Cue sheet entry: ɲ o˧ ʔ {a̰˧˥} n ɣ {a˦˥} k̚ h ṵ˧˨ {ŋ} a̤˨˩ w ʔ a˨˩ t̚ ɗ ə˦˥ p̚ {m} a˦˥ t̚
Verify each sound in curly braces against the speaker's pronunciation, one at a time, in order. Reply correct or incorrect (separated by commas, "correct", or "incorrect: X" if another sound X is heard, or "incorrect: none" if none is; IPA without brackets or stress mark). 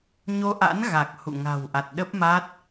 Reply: correct, incorrect: a˨˩, correct, correct